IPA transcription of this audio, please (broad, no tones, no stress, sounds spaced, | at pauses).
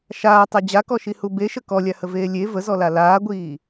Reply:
ʃ aː tˤ a d͡ʑ a k ɔ ʃ i h u b e ʃ ə k ɔ lʲ a h ə v eː lʲ e v ə z ɔ l a l aː ɡʷ iː